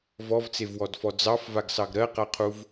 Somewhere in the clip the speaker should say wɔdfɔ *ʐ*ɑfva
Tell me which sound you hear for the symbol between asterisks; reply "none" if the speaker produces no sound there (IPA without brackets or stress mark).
d͡z